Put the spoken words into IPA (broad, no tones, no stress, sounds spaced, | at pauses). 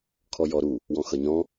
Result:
kʰ ɔ j ɔ ɾ u | w ɔ̃ x ʌ ɲ ɔ̃